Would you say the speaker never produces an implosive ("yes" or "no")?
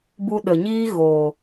no